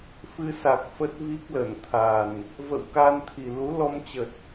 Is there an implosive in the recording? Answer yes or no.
no